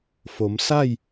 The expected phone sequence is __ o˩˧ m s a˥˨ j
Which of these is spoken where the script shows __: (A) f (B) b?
A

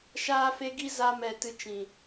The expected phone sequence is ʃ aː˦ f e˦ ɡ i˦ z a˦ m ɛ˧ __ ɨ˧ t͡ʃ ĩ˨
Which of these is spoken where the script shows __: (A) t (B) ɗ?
A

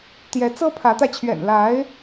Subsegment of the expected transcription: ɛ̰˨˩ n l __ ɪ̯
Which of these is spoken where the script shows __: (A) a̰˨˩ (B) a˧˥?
B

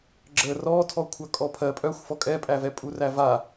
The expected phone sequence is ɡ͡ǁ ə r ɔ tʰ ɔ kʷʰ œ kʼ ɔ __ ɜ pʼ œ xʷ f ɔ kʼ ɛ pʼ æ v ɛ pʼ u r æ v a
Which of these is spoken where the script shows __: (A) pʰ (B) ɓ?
A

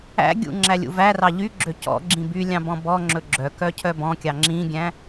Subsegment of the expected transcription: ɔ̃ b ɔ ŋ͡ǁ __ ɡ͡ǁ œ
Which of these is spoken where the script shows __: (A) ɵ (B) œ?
A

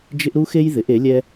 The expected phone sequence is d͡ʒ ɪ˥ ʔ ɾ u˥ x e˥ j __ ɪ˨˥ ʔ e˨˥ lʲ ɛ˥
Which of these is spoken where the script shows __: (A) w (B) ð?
B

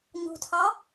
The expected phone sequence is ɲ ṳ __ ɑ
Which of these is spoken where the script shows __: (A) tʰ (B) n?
A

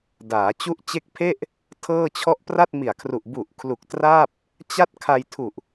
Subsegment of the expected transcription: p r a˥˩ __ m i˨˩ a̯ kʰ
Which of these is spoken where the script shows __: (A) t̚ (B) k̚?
A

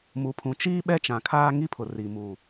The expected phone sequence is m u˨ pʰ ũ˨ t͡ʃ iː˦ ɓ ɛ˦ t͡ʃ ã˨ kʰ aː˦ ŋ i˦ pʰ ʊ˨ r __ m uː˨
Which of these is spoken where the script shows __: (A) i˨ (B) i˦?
A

